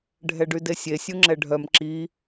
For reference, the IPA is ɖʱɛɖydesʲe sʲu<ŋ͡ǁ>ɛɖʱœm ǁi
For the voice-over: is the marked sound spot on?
yes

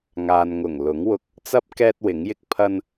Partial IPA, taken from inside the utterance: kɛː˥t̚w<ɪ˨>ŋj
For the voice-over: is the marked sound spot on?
no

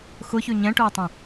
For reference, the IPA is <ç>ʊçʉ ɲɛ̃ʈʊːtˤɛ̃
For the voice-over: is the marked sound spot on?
no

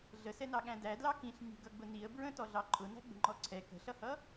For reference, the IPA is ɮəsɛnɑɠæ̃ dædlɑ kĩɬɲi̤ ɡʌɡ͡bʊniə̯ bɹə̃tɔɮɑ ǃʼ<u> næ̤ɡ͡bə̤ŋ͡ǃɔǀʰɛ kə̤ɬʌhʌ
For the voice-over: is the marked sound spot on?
no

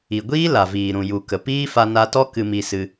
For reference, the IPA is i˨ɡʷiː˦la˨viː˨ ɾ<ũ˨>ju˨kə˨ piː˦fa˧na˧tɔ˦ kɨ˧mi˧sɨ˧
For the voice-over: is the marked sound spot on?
yes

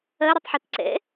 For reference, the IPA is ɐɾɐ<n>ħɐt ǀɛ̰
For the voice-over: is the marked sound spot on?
no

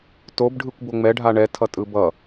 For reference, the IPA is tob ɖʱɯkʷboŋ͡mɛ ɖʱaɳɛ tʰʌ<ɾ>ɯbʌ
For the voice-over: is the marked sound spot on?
no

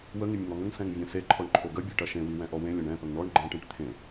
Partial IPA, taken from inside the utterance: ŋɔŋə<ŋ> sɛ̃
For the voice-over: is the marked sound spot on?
yes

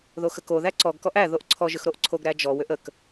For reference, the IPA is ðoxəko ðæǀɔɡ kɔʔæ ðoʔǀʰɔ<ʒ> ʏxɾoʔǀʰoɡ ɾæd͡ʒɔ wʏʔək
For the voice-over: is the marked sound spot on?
yes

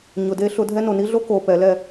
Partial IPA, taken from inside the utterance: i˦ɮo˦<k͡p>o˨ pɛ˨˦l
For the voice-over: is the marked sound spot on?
no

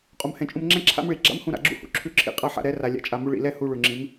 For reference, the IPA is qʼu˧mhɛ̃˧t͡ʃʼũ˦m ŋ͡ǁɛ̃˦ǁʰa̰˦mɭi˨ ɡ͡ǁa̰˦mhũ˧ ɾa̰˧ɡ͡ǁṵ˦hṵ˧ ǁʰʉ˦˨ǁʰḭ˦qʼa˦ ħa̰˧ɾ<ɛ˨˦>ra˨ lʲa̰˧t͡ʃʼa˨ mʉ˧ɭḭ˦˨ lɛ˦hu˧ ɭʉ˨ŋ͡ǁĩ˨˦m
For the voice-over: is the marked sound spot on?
yes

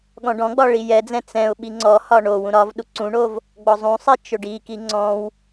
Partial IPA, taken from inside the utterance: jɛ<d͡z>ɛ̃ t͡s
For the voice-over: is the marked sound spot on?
yes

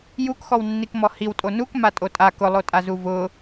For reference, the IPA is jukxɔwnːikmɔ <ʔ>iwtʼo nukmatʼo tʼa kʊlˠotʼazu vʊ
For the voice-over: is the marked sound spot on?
no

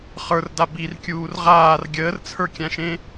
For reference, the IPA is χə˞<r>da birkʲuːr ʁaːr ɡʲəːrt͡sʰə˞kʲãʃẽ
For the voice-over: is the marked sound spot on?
yes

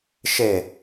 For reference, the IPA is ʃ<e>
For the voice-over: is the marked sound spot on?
yes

